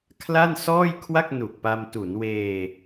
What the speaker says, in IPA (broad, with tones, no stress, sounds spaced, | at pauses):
kʰ l a˥˩ n s ɔː˥˩ j kʰ w a˥˩ k̚ n u˨˩ k̚ p a˧ m t u˩˦ n w eː˧